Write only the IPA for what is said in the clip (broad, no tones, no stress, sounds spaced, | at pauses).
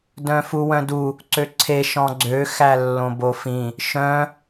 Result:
d œ̃ f u w œ̃ d u | ǀ ø ǀʰ e ʃ ɔ̃ ɡ͡ǀ ø x æ lː õ b o f ĩ | ʃ œ̃